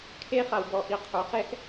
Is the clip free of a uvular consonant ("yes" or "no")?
no